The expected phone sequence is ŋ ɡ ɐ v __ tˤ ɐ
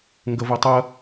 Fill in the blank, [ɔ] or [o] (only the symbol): o